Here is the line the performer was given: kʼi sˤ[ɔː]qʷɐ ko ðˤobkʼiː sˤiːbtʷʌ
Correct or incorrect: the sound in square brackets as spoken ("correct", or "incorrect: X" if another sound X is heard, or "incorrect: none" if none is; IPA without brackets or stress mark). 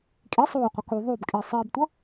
incorrect: oː